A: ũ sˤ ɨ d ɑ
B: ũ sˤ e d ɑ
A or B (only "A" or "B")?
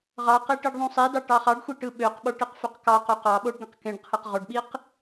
B